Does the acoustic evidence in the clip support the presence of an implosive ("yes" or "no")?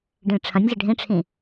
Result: no